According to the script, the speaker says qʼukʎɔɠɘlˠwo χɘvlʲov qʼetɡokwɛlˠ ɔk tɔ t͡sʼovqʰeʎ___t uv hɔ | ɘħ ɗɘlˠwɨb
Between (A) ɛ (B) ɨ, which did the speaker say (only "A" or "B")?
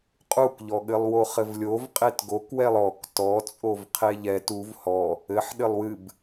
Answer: A